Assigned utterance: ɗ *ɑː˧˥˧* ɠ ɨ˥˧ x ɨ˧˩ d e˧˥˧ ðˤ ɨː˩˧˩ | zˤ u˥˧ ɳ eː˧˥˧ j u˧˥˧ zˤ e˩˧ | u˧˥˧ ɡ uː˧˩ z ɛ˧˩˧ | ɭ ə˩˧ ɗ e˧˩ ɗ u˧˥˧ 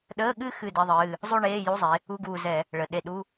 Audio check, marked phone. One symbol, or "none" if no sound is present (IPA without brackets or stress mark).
əː˧˥˧